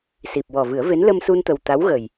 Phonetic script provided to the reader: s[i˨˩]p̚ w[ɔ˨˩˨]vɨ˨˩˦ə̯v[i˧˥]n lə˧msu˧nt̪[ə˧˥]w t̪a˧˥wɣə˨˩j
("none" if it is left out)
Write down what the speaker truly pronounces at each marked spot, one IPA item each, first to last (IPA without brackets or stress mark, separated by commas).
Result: i˨˩, ɔ˨˩, e˧˥, ə˨˩